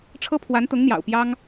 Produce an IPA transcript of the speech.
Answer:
ʈ͡ʂʰ ɤ˥ pʰ w a˧˥ n t̪ ʊ˧˥ ŋ n̪ j ɑ̰˨˩ ʊ̯ p j ɑ˥ ŋ

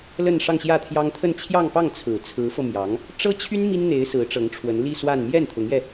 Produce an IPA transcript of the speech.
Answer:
l ə˥˧ n ʂ ɑ˥˧ ŋ ɕ j ä˥˩ t̪ʰ j ɑ˥ ŋ t̪ʰ ə˥˧ n t͡ɕʰ j ɑ˥˧ ŋ p ɑ˥˩ ŋ t͡sʰ ɹ̩˨˩ t͡sʰ ɹ̩˧˥ f ɤ˧ m j ɑ˧˥ ŋ | ʈ͡ʂ ɤ˥ t͡ɕʰ y˥ n m i˥ n n̪ e˧˥ ɪ̯ s ɹ̩˧˥ ʈ͡ʂ ɤ˧˥ ŋ ʈ͡ʂʰ w ə˧˥ n l i˥˧ s w a˥˧ n m j ɛ˥˩ n t̪ʰ ʊ˧˥ ŋ j ɛ˧

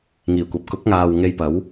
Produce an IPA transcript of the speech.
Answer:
ŋ iː˨˩ kʷ ɐ˨ p̚ k ʊ˨˥ k̚ ŋ aː˨ w ŋ e˧ j p ɐ˨˥ w

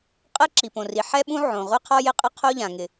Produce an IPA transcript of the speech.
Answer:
qʼ ɛ˥ ǁ i˩ p õ˩ r i˩ ħ ɛ˥ ɓ ũ˥ ʕ õ˩ ʁʷ e˥ qʰ ɔ˥ j ɪ˥ qʼ ɪ˥ qʰ o˥ ʎ ã˩ ŋ ɪ˩

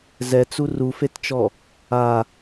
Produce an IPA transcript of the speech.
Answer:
z ɛ t͡s u r u f e t t͡ʃ ɔ | a

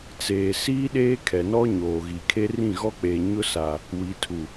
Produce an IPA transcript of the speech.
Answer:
t͡s eː˨ s iː˦ ɗ eː˦ kʰ ɛ˨ n ɔ˦ ɲ oː˨ ɣ i˨ kʰ e˦ r ĩ˦˨ ɣ ɔ˦ k͡p eː˨ ɲ ʊ˦ s a˨ | w i˨ tʰ u˨

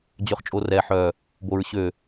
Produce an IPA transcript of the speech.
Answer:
d͡ʑ ø χ t͡ʃʼ o r ɛ ħ œ | b o ɹ ɕ ø

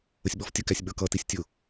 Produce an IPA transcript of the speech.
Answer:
ə sʲ ɓ ɔ f tʲ ə k æ sʲ ɓ ə˞ k ʌ t i sʲ tʲ ʊ

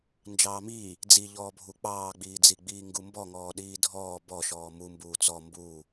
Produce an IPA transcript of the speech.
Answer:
n d͡ʒ ɑː m iː | d͡z i ʎ ɔː bʱ u k͡p ɑː ɡ͡b iː d͡z i ɡ͡b iː ŋ ɡ u m b ɔ ŋ ɔː ɗ iː dʱ ɔː b ɔ ʃ ɔː m u m b uː t͡s ɔ m b uː

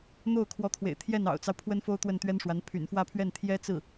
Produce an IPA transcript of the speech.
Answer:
n̪ o˥˩ ʊ̯ kʰ w ɔ˧˥ t̪ʰ w ḛ˨˩ ɪ̯ t̪ʰ j ɛ˥˩ n ɑ̰˨˩ ʊ̯ t͡s ɑ˦ ʊ̯ pʰ w ə˥ n f o˥ ʊ̯ t̪ w ə˥˩ n t̪ ɥ ɛ˥ n ʂ w a˧˥ n pʰ y̰˨˩ n f w ä˥˧ pʰ ɥ ɛ˥˩ n t̪ʰ j ɛ˥ t͡s ɹ̩˥˩

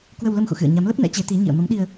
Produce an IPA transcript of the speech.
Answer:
k w ə˧ w l ə˧ m x ṵ˧˨ x ɨ̰˧˨ ə̯ ɲ a˨˦ m l ə˦˥ p̚ n ɛ̰˧˥ t͡ɕ e˨˦ t̪ i˨˦ ɲ ḭ˧˨ ə̯ m ə˨˦ m ɗ i˧ ə̯

